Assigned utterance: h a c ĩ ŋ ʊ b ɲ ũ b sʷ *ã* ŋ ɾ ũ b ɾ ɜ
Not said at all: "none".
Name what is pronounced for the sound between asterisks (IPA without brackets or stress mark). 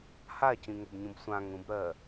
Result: ã